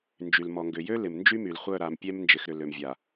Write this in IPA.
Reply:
n d͡ʒ y˨ l m ɔ˨ ŋ ɡ ʏ˨ j ø˦ l ɪ˨ m n d͡ʒ y˦ m y˨ l χʷ œ˦˨ ɾ a˨ m pʲ ɛ˦ m n d͡ʒ ɪ˨ x ɾ ʏ˨ l ø˨ m vʲ a˨

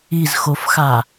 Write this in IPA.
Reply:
i z x o f x a

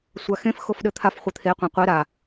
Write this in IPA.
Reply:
sʷ a x ẽ f x o f ɗ ɘ t̪ʰ a f χʷ ɘ t̪ʰ e qʷ ẽ qʷ e ɾ a

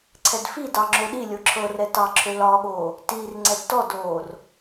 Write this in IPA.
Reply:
ǀʰ ɛ d f i d ɑ ŋ͡ǁ o ɗ i lʲ o ǁʰ ɤ r ɛ t ɑ ǁʰ ø l ɒː ɠ oː | t iː r ŋ͡ǀ ɛ d t ɔ d oː r

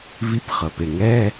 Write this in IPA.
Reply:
v i˧˥˧ p χ ɤ˩ p e˩ ŋ ɛ˧˥˧

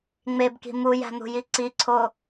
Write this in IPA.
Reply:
ŋ͡m e b k i̤ m u j æ̤ n̪ ṳ j i ǀ i ǀʰ o

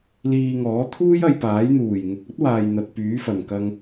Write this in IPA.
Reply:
l iː˧ ŋ ɔː˨˥ t̪ʰ uː˥ j ɐ˧ j p aː˨˥ j n̪ uː˨˩ j ŋ ʊ˨ k̚ ɐ˥ t̚ w aː˨ j n̪ ɐ˨ t̚ p yː˨˥ f ɐ˧ n k ɐ˥ ŋ

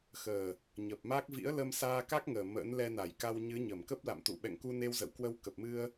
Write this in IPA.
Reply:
x əː˨˩ | ɲ ə˨˩ p̚ m a˦˥ k̚ v ḭ˧˥ ə̯ l ə˧ m s aː˧ k a˦˥ k̚ ŋ əː˨˩ m ə̰˧˥ n l ɛ˧ n a˧˩ j k a˧ w ɲ ɨ˨˦ ɲ ə˧˩ m k ə˦˥ p̚ l a̰˧˨ m t̪ ṵ˧˨ ɓ ɛ̰˧˨ ŋ k u˧ n e˧ w z ə̰˧˨ w k w ə˧ w k ə˨˩ p̚ m ɨ˧ ə̯

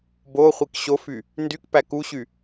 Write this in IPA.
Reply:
b o χʷ i k ɕ o f y | n d y k p æ k u ɕ y

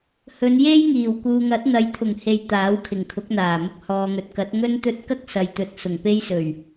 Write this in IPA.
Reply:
h ɵ˨˧ n j e˥ j ŋ iː˨˩ w k uː˨ ŋ ɐ˨˥ t̚ n̪ ɐ˨˧ j t̪ʰ ʊ˨˩ ŋ h e˨ j t̪ aː˨˥ w kʰ ɪ˨˩ ŋ kʰ ʊ˨˥ k̚ n̪ aː˨˩ m ʊ˧ k̚ h ɔː˨ ŋ ɵ˨ t̚ k ɐ˨˥ t̚ ŋ ɵ˥ n t̪ ɵ˥ t̚ k ɐ˥ k̚ s ɐ˨ j t̪ ɵ˨ t̚ s ʊ˨˩ ŋ p e˥ j s ɵ˨˩ ɥ

